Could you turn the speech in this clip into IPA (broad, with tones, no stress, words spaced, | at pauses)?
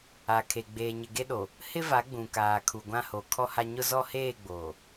a˨kʰe˨ ɡ͡beː˨ɲɪ˨ɡe˦ɗo˨ | hɪ˦va˨˦ɡ͡bũ˨kaː˨ kʰu˨ɡʷã˦ho˨ kʰɔ˦ha˦ ɲʊ˦zɔ˦heː˦˨ɡ͡boː˨